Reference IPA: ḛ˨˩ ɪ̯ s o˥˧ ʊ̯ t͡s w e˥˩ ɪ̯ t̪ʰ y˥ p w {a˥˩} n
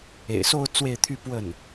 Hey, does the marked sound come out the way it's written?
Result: no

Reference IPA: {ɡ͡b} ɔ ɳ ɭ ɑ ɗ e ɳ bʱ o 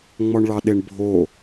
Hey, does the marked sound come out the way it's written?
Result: no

